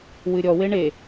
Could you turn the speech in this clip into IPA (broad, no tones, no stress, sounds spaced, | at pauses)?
w ɨ ɾʲ ɔ w e ɳ e